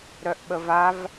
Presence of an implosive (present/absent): present